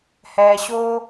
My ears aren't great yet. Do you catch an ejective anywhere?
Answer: no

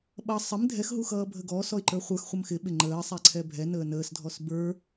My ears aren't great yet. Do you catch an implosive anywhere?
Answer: yes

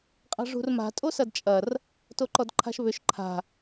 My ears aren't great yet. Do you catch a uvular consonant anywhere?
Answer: yes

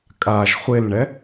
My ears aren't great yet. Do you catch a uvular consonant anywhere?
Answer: yes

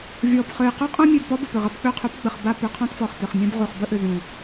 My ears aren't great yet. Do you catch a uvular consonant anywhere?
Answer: yes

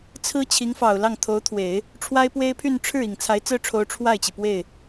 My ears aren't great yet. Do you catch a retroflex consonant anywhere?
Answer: yes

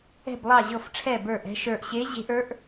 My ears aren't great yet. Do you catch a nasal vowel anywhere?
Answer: no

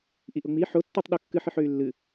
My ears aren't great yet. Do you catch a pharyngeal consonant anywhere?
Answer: yes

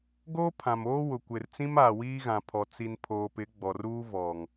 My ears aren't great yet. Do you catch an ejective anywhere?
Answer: no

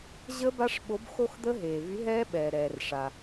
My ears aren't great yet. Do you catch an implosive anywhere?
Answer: yes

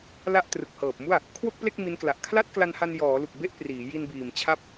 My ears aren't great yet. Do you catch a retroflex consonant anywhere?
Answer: no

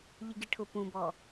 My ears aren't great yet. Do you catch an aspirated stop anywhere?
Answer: yes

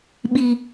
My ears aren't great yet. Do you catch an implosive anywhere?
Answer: yes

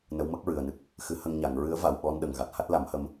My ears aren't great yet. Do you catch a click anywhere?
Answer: no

